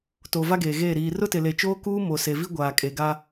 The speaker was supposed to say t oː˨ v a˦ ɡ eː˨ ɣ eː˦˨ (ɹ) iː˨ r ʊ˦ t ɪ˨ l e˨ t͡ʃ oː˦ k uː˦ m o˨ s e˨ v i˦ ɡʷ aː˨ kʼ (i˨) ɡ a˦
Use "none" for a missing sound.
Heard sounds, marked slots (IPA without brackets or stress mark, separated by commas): ɾ, e˨